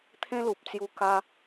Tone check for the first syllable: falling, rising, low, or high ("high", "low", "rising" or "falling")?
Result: high